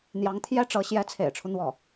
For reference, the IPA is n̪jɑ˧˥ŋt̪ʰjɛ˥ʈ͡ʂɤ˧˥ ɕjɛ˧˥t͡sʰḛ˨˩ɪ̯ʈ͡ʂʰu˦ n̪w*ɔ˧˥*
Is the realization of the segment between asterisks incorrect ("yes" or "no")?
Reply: yes